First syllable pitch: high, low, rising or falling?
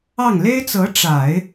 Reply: falling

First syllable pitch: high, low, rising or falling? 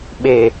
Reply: low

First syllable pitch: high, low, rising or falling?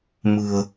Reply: low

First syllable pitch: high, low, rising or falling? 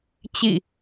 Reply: falling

